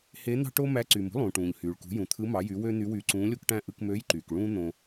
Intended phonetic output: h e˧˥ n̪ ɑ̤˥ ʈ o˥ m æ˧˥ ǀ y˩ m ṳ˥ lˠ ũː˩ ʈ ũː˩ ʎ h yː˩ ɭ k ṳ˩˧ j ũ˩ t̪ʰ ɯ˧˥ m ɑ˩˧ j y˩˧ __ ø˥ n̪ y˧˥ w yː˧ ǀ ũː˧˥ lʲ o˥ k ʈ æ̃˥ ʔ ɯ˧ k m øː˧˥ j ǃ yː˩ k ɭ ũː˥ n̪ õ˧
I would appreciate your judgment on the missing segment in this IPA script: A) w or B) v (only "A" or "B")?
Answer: A